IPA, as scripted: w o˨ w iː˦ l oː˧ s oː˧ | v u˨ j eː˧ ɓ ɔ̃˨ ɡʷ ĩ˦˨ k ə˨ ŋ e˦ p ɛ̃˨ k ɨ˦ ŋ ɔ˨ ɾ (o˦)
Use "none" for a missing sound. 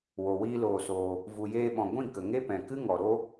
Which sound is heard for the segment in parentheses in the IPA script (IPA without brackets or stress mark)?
o˦